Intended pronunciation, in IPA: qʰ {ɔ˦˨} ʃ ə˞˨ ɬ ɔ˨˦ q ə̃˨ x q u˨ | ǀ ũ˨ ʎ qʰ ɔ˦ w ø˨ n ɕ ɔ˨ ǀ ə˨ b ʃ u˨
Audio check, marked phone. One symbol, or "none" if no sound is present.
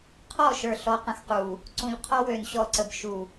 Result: ɔ˦˨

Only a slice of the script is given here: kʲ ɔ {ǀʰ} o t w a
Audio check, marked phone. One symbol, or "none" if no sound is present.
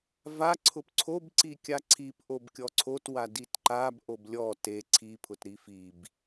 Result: ǀʰ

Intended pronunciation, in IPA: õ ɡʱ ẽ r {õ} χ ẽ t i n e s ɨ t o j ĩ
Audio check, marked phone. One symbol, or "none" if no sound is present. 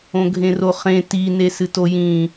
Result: o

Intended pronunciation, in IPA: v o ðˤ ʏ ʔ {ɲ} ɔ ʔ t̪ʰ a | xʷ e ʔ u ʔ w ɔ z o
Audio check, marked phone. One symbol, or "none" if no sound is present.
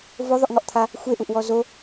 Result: ŋ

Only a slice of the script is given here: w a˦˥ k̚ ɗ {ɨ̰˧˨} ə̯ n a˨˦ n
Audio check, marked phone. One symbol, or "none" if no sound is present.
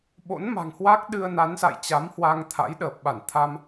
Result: ɨ˧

